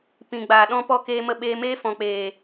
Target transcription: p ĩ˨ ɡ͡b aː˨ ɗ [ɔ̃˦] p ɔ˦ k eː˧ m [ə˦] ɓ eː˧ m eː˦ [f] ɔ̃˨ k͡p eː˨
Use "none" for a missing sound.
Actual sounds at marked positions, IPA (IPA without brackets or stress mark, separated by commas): ɔ̃˦, ə˧, f